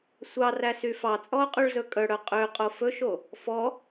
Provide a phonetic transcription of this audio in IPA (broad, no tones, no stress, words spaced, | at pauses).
sʷɑræsy fɑt͡sʼɔo̯qʼyɭzɵ kʼœɽœ qʼøqʼo fɵʃo | fɔ